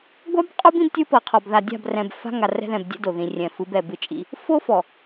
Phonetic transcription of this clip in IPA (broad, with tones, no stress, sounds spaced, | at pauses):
ɡʷ a˦ b qʼ o˦ b ĩ˦ b tʲ ɯ˦ p ɤ˨ qʰ ɔ˨ b ð a˨ dʲ a̤˦˨ b r ɛ̃˨ b f a̤˦ ŋ a˨ r ɛ̤˦ ð ɛ̃˨ b dʲ ɛ̰˦ d o˨ ð ĩ˨ rʲ ɛ̃˨ f ɯ˨˦ b ɛ˨ b ɯ˦ t͡ʃʼ ḭ˦ | f o˦ f ɔ˨